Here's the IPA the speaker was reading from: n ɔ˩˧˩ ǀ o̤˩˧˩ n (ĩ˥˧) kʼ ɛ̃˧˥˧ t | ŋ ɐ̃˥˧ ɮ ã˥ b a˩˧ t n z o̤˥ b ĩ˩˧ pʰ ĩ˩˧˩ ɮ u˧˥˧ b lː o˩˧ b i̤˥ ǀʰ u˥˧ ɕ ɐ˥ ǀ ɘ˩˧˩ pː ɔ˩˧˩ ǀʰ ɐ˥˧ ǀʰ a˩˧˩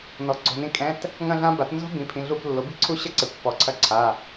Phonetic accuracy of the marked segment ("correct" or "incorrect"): correct